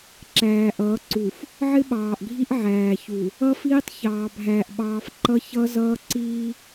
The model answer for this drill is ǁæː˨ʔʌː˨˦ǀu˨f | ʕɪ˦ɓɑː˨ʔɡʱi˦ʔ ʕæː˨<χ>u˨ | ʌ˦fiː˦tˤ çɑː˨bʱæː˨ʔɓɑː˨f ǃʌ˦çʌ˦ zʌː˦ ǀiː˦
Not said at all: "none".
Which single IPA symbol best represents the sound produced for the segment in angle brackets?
ç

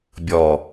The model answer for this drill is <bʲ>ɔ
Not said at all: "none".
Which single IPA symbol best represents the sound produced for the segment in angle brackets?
bʲ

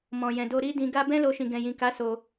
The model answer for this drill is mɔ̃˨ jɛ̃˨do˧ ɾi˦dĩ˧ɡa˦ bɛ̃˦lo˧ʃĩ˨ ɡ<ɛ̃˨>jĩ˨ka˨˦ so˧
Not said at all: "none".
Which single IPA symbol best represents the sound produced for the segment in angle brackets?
ɛ̃˨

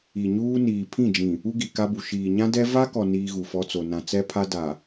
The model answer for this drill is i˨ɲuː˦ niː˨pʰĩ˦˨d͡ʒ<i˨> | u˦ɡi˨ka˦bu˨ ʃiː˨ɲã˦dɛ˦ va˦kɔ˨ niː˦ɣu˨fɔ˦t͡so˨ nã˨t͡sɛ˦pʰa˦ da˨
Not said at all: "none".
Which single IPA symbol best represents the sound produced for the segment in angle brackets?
ĩ˨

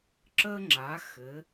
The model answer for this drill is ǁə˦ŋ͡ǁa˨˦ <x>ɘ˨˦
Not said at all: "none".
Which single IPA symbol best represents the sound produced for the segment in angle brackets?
x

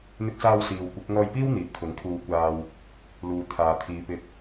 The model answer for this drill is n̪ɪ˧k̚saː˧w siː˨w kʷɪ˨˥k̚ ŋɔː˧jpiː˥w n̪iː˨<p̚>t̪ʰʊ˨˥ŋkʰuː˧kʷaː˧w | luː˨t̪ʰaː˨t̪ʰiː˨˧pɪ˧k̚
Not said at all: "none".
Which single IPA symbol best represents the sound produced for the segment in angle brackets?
p̚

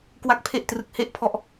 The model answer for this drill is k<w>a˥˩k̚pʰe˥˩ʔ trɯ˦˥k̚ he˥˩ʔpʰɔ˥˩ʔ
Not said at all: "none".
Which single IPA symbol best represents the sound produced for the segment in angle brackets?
w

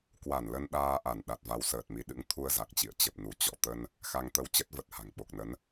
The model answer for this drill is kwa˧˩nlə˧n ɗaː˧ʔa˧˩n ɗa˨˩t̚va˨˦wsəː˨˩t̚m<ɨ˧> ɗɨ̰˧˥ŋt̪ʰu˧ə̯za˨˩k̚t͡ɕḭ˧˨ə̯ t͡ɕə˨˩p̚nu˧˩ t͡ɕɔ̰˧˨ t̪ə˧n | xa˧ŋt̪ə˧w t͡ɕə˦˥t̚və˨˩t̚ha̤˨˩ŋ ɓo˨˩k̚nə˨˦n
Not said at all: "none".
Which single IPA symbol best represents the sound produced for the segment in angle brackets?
i˧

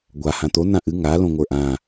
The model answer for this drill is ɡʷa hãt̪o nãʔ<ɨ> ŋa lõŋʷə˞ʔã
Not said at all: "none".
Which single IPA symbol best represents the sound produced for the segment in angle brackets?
ɨ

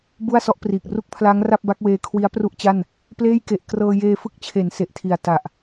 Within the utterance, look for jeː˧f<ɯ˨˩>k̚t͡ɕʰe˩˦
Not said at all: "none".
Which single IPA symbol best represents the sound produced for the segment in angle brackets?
ɯ˦˥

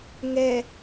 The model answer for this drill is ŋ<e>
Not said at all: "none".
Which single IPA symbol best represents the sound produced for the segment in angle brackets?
ɛ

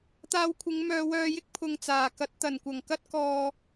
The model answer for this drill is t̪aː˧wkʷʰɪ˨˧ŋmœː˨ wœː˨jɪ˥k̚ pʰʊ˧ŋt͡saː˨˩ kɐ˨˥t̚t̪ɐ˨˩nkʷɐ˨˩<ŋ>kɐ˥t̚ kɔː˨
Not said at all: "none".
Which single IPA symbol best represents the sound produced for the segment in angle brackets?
ŋ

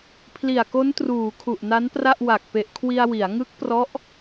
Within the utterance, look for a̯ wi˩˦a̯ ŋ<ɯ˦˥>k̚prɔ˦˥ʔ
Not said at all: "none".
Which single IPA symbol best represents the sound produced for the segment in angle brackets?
ɯ˦˥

